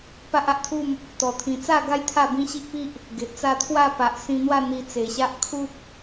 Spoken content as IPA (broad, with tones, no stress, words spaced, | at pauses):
pa˦ʔa˦ʔt̪ʰu˥˧m | t̪ɔ˨˩ t̪ʰĩ˨˩t͡sa˥˧ɡa˦j t̪ʰa˥˧bĩ˦ɕi˦ʔpi˦ʔ | ɡe˨ʔt͡sa˥˧ t̪ʰwa˥˧pa˨ʔsĩ˧n̪wa˥˧ n̪i˧t͡se˨˩ɕa˦ʔ kʰu˦p̚